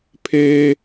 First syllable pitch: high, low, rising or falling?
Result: high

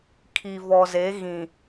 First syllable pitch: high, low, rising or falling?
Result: low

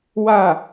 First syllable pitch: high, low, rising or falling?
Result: falling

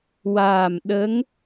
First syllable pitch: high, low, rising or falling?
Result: low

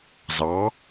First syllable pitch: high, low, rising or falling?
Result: rising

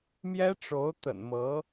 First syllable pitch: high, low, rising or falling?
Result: high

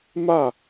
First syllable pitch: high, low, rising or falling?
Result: falling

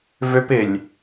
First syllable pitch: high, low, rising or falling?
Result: high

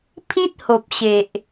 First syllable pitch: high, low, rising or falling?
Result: high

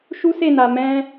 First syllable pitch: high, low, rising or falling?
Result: high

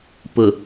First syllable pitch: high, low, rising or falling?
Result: low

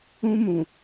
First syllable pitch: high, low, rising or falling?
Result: high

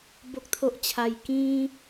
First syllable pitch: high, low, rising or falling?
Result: high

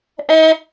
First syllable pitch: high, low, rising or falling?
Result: high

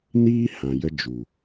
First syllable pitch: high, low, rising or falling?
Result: high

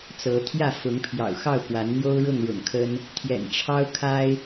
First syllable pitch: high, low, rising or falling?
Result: rising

